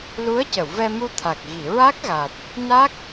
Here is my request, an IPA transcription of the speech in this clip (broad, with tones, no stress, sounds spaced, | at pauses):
l u˧˥ ə̯ c ə˨˩˨ w v ɛ˧ m u˧ t̪ʰ a˨˩ k̚ ɣ i˨˩˨ ɹ a˦˥ k̚ ɣ a˨˩ t̚ | n a˦˥ k̚